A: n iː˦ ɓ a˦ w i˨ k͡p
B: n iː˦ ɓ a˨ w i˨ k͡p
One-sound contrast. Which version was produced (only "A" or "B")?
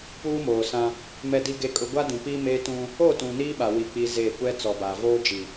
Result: B